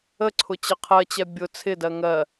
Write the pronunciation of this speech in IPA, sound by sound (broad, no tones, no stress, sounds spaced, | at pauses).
ə ǀʰ ʊ t͡ɕ ə qʰ ɜ t͡ɕ ɛ bʲ ʊ t͡sʰ ɪ d ɜ ŋ ɜ